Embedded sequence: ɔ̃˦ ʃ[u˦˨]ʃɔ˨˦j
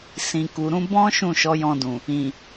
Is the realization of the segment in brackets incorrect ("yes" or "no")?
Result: yes